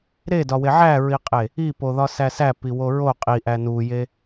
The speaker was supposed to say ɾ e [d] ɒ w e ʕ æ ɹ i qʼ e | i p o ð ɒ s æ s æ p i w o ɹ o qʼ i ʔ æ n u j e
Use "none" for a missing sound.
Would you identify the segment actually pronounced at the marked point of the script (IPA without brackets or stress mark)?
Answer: d